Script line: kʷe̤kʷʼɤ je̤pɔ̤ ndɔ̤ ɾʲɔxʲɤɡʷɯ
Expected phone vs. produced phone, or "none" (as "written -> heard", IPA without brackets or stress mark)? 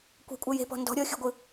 none